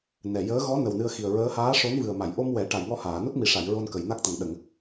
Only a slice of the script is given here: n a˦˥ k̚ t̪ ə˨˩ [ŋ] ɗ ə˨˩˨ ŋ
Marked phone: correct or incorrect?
correct